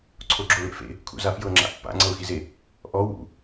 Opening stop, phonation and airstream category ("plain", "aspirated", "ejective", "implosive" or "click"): click